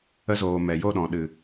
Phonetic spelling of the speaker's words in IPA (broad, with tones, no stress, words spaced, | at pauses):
ə˧zoː˨ mɛ˨jo˦˨ɗɔ̃˨ɗɨ˨